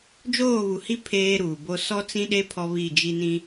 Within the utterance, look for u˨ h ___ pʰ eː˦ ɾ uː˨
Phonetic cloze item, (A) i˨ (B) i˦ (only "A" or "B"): B